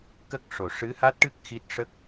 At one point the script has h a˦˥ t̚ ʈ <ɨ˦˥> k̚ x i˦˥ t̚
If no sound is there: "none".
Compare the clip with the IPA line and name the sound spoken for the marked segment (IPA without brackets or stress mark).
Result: ɨ˦˥